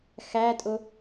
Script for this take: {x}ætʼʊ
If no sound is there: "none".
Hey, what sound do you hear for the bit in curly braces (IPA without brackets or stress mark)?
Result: x